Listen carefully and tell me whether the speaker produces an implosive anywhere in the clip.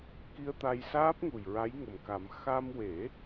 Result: no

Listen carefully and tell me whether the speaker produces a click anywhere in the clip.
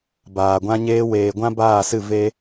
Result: no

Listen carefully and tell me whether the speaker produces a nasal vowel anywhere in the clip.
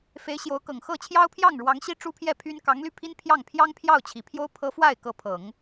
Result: no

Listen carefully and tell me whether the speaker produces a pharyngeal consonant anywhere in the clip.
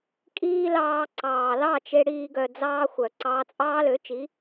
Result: no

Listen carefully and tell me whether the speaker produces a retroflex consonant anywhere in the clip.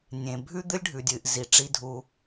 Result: yes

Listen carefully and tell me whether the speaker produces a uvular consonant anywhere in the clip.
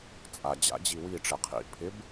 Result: yes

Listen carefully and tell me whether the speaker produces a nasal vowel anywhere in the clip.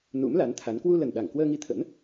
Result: no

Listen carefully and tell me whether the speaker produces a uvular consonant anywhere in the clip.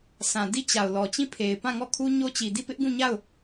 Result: no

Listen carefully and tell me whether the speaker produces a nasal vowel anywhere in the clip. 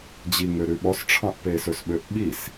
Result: yes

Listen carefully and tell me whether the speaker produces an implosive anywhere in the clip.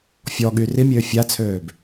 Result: yes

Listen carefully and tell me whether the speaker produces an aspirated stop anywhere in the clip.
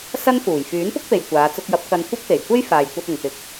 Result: no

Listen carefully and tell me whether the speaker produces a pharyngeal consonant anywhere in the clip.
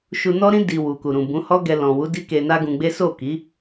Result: no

